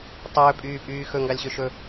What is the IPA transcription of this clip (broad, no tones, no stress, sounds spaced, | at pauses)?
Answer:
tˤ ɵː pʼ yː pʼ yː x ɵ ŋ ɡ ɑ lʲ ɕ ø ʃ ɵ